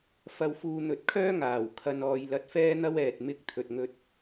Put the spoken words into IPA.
f ɐ˧ w f uː˧ n̪ ɵ˨˥ t̚ kʰ œː˥ ŋ aː˨˩ w kʰ ɐ˨ n ɔː˨ j l ɐ˧ t̚ f ɛː˥ n̪ ɐ˥ w ɛː˨ t̚ m ɪ˥ k̚ t̪ʰ ɵ˨ t̚ ŋ ɵ˧ t̚

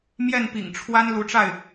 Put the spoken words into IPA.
m j ɛ˥˩ n p ḭ˨˩ ŋ ʈ͡ʂʰ w a˥ n l u˧˥ ʈ͡ʂ a˥˩ ɪ̯

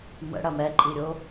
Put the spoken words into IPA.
m ə̰ ɽ ɐ m ɛ ǃʼ i ɾʲ o

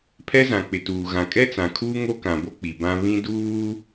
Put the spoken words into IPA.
pʰ ɛ˦ z ã˨ k͡p ɪ˨ t uː˨ ɣ ã˨ kʼ ɛ˦ t͡s ã˨ kʰ uː˦ ŋ o˦ k ã˨ b o˦ k͡p i˨ b ã˦ β ĩ˦ d uː˦

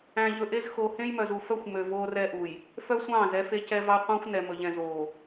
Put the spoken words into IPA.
æ̃˨ ʎ ɵ˨ ʔ e˦ z x o˨ h ẽ˦ j m œ˨ z u˨ f œ˦ xʷ m ø˨ v oː˦ r ɛ˦ ʔ u˨ j | f œ˦ sʷ ɑ̃ː˦˨ z ɛ˦ f e˦ c ɛ˦ v ɑ˦ qʷ ɑ̃˦ xʷ n ɛ˨ m ɵ˨ ʎ ɛ̃˨ z oː˨

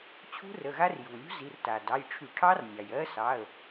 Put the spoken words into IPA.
t͡ɕʰ ṳ˦˥ r ə˩˧˩ ɣ a˦˥ r j u˩ lʲ ṳ˦˥ z i˩˧˩ r t a˩ d ɑ˩˧˩ j ʈ͡ʂʰ y˧˩˧ ʈʰ ɑ˦˥ r nʲ ɑ˩ j ɜ˦˥ s ɑ˩˧˩ ə̯

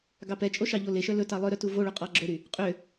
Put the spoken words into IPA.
ɡ ɑ p ɛ t͡ʃʼ o ʃ ɑ ʎ o l e ʃ œ l ɵ t ɑ lˠ œ ɾ œ t u v o ɭ ɵ qʼ ɑ ɡ͡ǁ ɵ ɾ y | qʼ ø

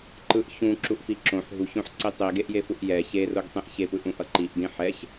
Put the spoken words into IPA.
ǃ ɯ ʔ ç ũ ǁ u ʔ f i ǁ õ ħ ɦ u ç õ ħ ǀ i tˤ i ɡ e ʔ j e f u ʔ j ɛ ç e r o ɡ tˤ ĩ ʔ ç e p ɯ ʔ ũ ʔ ʌ ǃ i ʔ d ĩ ħ ɛ ç

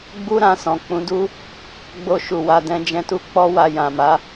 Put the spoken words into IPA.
ɡ͡b u˦ ɾ ã˦˨ s ɔ̃˨ k͡p ũ˨˦ d u˦ | ɡ͡b o˧ ʃ u˨ w a˧ d ɛ̃˧ d͡ʒ ɛ̃˦ t u˦ k͡p ɔ˧ w a˨ j ã˨ m a˨˦

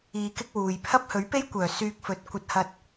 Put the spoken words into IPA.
iː˧ k ɪ˥ k̚ w uː˨ j pʰ ɐ˥ p̚ h ɵ˨˥ ɥ p e˥ j kʷ œː˨˩ s yː˧ k̚ f ɵ˨˥ t̚ kʷ ɐ˧ t̚ h ɐ˧ t̚

